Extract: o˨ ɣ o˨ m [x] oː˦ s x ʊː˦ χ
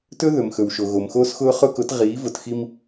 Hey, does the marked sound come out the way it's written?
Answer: yes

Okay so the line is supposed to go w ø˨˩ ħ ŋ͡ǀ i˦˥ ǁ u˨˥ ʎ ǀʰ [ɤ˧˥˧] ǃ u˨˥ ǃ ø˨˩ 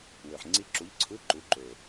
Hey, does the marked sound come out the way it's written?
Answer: no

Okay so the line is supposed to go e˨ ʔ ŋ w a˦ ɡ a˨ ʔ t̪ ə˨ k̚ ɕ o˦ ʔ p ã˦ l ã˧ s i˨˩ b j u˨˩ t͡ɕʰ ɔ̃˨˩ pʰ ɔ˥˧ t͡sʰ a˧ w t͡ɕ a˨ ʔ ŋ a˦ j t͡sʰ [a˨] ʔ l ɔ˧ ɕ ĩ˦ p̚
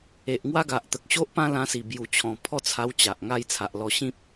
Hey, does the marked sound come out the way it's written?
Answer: yes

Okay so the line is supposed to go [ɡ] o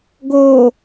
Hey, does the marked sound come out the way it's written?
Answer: yes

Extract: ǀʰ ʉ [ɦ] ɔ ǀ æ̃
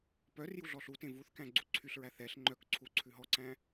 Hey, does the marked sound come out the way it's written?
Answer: yes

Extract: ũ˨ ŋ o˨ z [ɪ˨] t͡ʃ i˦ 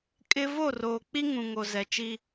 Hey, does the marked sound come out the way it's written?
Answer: no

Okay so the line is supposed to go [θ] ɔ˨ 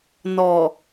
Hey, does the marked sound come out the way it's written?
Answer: no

